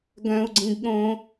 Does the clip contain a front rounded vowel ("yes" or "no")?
yes